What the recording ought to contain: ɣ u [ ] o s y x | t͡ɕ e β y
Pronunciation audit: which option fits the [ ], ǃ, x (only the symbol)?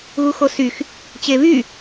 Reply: x